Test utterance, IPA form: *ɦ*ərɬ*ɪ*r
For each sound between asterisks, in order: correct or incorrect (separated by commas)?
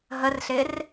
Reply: correct, correct